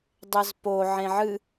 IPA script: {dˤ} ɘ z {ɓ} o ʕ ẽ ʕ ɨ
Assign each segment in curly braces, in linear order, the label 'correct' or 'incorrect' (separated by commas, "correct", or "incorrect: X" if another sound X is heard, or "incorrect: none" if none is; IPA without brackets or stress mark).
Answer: correct, incorrect: p